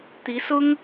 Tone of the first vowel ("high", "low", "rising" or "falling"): rising